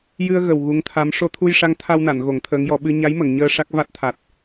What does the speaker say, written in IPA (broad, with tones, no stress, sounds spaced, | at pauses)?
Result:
j ɨ˧ ə̯ ɣ ə˨˩ w ɣ u˧˥ ŋ t̪ʰ a˧˥ m ʂ o˧ t̪ʰ u˧ j ʂ a˧˥ ŋ t̪ʰ a˧ w n a˨˩˨ n ɣ o˨˩˦ ŋ t̪ʰ əː˧˥ ŋ j ɔ˨˩˦ ɓ ɨ˧ ɲ a˧˥ j m ə˨˩˨ ŋ ɲ əː˧ ʂ a˦˥ k̚ v a˦˥ t̚ t̪ʰ a˨˩ t̚